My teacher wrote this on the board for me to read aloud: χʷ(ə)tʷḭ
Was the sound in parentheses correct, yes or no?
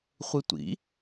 no